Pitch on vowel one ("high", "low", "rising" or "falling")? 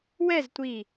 falling